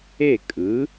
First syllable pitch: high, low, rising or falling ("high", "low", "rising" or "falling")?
falling